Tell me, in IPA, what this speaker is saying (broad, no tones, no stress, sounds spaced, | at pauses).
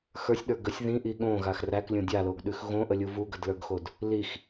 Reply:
x ə˞ sʲ ɗ ə˞ ɡ ə sʲ ð ĩ ʔ i ɠ õ ɣ a x r æ k lʲ õ dʲ a l o ɡ ɗ ʉ x ɣ õ ʔ ə lʲ u v u ɡ ə d l ə˞ ɡ x o d | l i x